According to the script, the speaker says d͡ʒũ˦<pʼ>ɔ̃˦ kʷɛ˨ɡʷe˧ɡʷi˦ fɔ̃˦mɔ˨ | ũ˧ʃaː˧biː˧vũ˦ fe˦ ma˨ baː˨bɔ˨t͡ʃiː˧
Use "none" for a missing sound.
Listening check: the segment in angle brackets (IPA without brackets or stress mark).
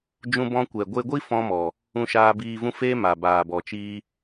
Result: b